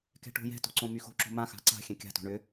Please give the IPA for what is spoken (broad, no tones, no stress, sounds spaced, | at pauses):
k ɛ̤ ʈ o̤ j ɛ̤ t o̤ ǀ õ m y x o̤ ǁ o̤ m ã x a̤ ǀ a̤ xʲ ɛ̃ kʲ a̤ t o̤ ɳ ʏ